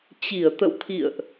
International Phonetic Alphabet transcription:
t͡ɕi˧˩ə̯ t̪ə̰˧˨wt̪ʰḭ˧˨ə̯ʔ

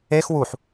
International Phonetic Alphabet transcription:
ex wuħ

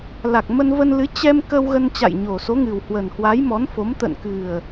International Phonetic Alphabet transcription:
la˨˩k̚mə˧nvə˧nlɨ˨˦ t͡ɕɛ˧mkə˧w ɣə˧nt͡ɕa̰˧˨jɲo˨˩so˨˦ ŋɨ˨˩whwə˨˩nhwa˨˦j mɔ˨˦nfo˨˦mt̪ə̰˧˨n kɨ˨˩ə̯

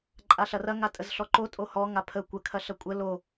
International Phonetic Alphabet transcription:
ǃʼaɬɐrɐ ŋatʼəzɬɔǃo tʼohɔ ŋapʰə kʷə kʰɐɬɐkʷʼə lo

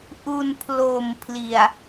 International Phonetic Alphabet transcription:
ʔu˧npʰlo˨˩m pʰli˨˩a̯

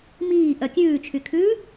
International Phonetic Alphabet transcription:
miːʔœ kʲʉːt͡ʃʰykʰʉː

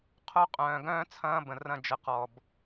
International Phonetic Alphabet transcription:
qʰo˦qʼœ̃ː˨ ɡœ̃ː˦t͡sʰɐ̃ː˦ bə̃˨ rɐ̃˦˨ d͡ʒə˨qɔ˨b

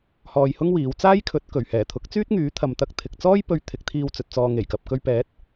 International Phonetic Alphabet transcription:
hɔː˧jhʊ˥ŋwiː˨˧w t͡saː˥jkʰɵ˨˥t̚kɵ˨˩ɥ hɛː˨˩t̪ʰʊ˨˥k̚ t͡syː˥t̚ŋyː˨˥ t̪ʰɐ˨mt̪ɐ˧k̚t̪ʰɪ˨k̚ t͡sɔː˥jpɵ˧ɥ t̪ʰɪ˨˥k̚t̪ʰiː˧wt͡sɵ˨t̚ t͡sɔː˨ ŋe˨˩jkɐ˨p̚ kɵ˧ɥpɛː˨˥t̚

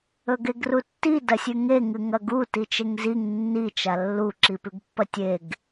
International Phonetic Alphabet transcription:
ɵɡeɡrutːi dɐsʲʉŋe ŋɨŋɐɡu tit͡ʃeŋziŋ nːi t͡ʃalːu ǁipʉɡpːɐtʲeɡ

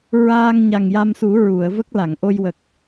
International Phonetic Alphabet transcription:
ɹaː˧ŋ ɲa˨˩ŋja˧msu˨˩˦ ɹu˨˩˨ə̯və˦˥k̚ la˨˩˨ŋʔo˧j wə˨˩k̚

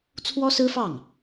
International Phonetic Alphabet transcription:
t͡sʰwɔ˥sɹ̩˥fɑ˥˩ŋ

